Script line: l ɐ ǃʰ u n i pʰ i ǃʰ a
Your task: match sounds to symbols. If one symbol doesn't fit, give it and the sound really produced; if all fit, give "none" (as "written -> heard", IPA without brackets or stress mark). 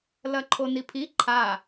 u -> o